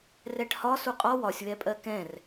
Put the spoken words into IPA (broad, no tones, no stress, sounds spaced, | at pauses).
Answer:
r ɛ ʈ h ɒ s u qʼ ɒ w ɒ sʲ w ɛ pʼ ɜ k ɛ̃ r